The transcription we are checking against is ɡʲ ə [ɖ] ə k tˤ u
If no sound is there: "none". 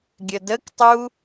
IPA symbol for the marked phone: d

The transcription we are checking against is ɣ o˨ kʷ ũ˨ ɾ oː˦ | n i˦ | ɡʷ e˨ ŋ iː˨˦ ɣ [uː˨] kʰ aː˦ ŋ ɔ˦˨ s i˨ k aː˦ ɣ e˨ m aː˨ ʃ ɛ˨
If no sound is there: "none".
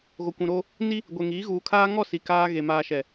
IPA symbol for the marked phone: uː˨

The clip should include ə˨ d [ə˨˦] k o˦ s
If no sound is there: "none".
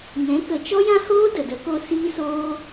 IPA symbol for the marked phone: ə˨˦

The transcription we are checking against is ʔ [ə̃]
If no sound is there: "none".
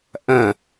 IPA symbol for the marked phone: ɐ̃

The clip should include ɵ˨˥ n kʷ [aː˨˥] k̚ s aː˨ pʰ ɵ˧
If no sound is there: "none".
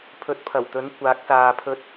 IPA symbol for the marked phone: aː˨˥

